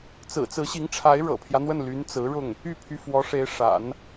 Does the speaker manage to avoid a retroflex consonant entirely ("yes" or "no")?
no